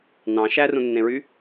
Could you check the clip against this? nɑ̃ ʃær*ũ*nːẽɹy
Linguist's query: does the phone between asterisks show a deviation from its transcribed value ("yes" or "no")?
no